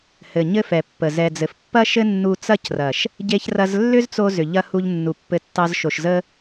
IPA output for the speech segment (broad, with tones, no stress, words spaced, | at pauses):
hɘ˨ ɲɘ˦fɛ˨pːə˨ zɛ˨d͡zɘ˨fpːɐ˦ʃɘ˦ nːu˧t͡sɐ˦crɐ˨ʃ | ɟe˧çrɐ˧zlːʏ˦zt͡so˧ zʏ˨ʎɐ˦ hu˧ʎnːu˨pːɘ˨˦tːɑ˧z ʃo˨ʃzə˦